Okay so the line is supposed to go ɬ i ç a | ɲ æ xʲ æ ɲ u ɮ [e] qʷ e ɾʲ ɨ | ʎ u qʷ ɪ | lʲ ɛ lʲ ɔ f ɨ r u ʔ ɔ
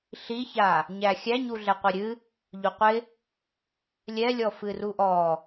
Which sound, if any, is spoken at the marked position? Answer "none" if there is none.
ɛ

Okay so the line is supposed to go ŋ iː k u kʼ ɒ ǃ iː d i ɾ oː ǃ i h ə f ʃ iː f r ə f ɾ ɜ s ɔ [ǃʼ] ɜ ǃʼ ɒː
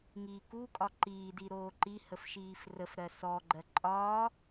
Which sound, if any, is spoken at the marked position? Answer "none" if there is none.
ɡ͡ǃ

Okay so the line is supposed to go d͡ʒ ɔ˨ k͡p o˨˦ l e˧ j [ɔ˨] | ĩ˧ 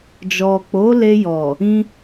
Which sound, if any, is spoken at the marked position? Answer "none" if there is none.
ɔ˨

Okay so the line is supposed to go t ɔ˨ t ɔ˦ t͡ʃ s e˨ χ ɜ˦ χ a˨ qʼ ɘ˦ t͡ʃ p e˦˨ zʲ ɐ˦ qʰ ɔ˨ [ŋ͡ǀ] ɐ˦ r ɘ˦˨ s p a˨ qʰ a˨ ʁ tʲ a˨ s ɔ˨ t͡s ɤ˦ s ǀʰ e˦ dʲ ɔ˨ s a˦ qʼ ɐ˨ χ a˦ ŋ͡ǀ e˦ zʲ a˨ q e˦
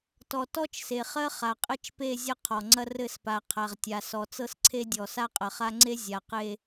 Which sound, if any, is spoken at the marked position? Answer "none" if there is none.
ŋ͡ǀ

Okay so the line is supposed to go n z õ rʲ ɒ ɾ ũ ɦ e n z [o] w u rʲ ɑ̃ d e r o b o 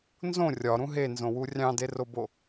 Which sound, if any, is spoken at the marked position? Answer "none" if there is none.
õ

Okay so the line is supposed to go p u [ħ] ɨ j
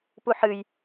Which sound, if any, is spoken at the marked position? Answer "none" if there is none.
ħ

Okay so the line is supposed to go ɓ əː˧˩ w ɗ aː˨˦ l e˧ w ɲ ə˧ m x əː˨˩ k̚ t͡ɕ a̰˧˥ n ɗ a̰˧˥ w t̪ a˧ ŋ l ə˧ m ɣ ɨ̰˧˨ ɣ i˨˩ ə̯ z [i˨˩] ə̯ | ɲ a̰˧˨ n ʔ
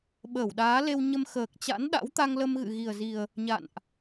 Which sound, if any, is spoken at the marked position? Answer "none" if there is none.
i˨˩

